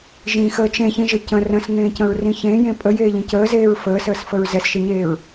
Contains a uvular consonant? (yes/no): no